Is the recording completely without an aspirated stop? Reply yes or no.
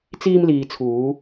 no